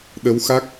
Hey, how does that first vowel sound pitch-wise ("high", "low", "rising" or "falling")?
rising